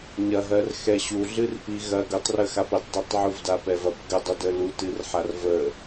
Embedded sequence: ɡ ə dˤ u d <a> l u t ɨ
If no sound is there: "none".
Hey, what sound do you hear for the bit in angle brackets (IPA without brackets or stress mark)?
ə